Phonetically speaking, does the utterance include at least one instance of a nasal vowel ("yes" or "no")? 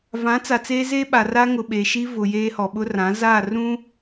yes